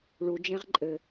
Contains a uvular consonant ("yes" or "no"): yes